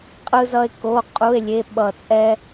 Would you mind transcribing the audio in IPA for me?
qʼ ɯ˥ z ʌ˥ e̯ k o˧˥˧ qʼ u˧˥˧ e̯ lʲ e˧˥˧ ɓ ʌ˦˨ t͡sʼ ɛ˥

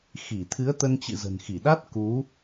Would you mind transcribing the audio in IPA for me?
x i˧˩ t̪ʰ ɨ˨˦ ə̯ t̪ ə˧ n t͡ɕ ɨ̰˧˨ z ə̤˨˩ n x i˧˩ ɗ a˦˥ t̚ k u˨˦

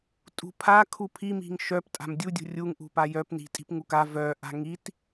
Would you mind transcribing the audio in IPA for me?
tʼ ṳ pʰ a kʰ u pʰ i m i̤ ŋ ʃ œ p tʼ a̤ m dʲ u dʲ ṳ rʲ u ŋ ʔ ṳ p a j œ p n i̤ tʼ i̤ p ŋ u k a v œ ʔ a̤ ŋ i t

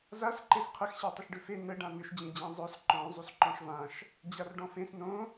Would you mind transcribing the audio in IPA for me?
z a s ǃ e s qʰ ə x ɕ a tˤ ə ʃ ɖ ʏ f e n ə ɖ ã n̪ ʏ ʃ d͡ʑ ẽ d͡ʑ ẽ zˤ œ s ǃ ɔ̃ zˤ u s ǃ ɔ̃ ʃ v ã ʃ | d͡ʑ a r ɖ ɔ̃ f ẽ s n õ

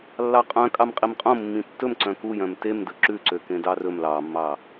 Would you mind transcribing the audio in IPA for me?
lː ɑ qʼ œ̃ kʼ ɑ m qʼ i m qʼ õ mː ĩ tː ɵ m ǀ œ̃ k u j œ̃ m t e m d ɵ ǁ ʉ ǀ ø k ẽ d ɑ r ɵ m l ɑ mː ɑ

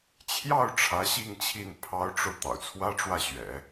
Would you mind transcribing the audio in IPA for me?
t͡ɕʰ j ɑ˥˩ ʊ̯ ʈ͡ʂʰ ä˧˥ ɕ i˥˧ ŋ t͡ɕʰ i˥˩ n pʰ ɑ˧˥ ʊ̯ ʈ͡ʂ o˧ ʊ̯ t̪ ɑ̰˨˩ ʊ̯ t͡sʰ w ä˥ ʈ͡ʂ w ä˥˩ ɕ ɥ ɛ̰˨˩˦

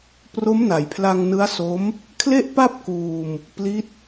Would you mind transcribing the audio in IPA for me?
p r o˦˥ m n a˩˦ j pʰ l a˧ ŋ n ɯ˦˥ a̯ s o˦˥ m | kʰ l e˥˩ ʔ p a˥˩ p̚ k uː˧ m | p l i˦˥ t̚

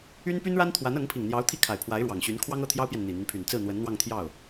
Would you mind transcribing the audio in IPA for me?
y˥ n p y˥ n ɻ a˥ n t̪ʰ w a˧˥ n ɤ˧˥ ŋ pʰ i˨˩ ŋ n̪ j ɑ˧˥ ʊ̯ t̪ʰ i˥˩ kʰ a˨˩ ɪ̯ pʰ w a˧˥ ɪ̯ ɻ w ɑ˨˩ ŋ ɕ y˧˥ n kʰ w ɑ˥ ŋ ɤ˥˩ t̪ʰ j ɑ˥ ʊ̯ p j ɛ˨ n n̪ i˨˩ n̪ y˦ n pʰ y˨˩ n t͡s ɹ̩˥˩ n̪ w ə˧˥ n n̪ w ɑ˥˧ ŋ t̪ʰ j ɑ˥˩ ʊ̯

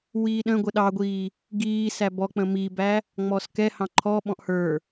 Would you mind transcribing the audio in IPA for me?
w iː ɗ ə̃ ɡʷ ə ɗ ɑ ɡʷ iː | ɡ iː s æ b ɔ k͡p ə̃ m i b æ | ŋ͡m ɔ s k ɛ h ɑ̃ ǃʰ ɔ ɓ ɔ̃ ʔ h ə˞

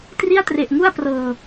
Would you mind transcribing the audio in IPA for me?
t r i˥˩ a̯ t r e˨˩ ʔ ŋ u˥˩ a̯ p r ɤː˨˩

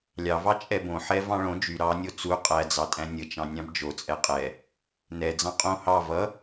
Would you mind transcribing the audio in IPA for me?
lʲ ɑ v ɑ t͡ʃʼ ɛ b õ ħ ɛ v ɑ̃ ɭ õ d͡ʒ y ɾ ɑ nʲ o t͡s u qʼ æ d͡z ɑ tʼ æ̃ nʲ ə t͡ʃ ɑ̃ nʲ ɑ̃ b d͡ʒ o t͡sʼ ɛ qʼ ɛ | n ɛ d͡z ɑ̃ qʼ õ h ɑ v ʌ

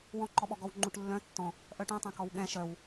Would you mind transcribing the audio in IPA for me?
w ɔ̃ ǃ ɔ ɓ ɔ ɡ ɔ w ŋ͡ǃ u ʈ lː œ̃ tː ɔ̃ | ʔ œ ʈ ũ tˤ ɛ̃ k ɔ w ɠ ɛ̃ ʃ œ w

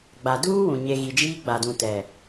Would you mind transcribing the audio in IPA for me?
ɡ͡b a˨ d uː˦ w ũ˨ ɲ e˨ ɣ i˨ d͡ʒ iː˦ ɡ͡b a˨ d ũ˨ t ɛ˨

